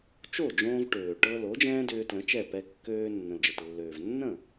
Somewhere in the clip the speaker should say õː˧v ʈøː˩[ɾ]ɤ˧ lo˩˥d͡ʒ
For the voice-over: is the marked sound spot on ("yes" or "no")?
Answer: no